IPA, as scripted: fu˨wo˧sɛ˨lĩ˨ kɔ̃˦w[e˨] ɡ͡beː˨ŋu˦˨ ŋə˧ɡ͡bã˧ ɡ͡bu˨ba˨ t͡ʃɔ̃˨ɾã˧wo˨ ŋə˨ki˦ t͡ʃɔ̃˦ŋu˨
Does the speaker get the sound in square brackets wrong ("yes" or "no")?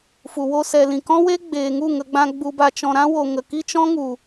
yes